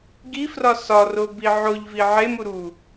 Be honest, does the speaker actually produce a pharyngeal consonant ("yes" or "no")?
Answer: yes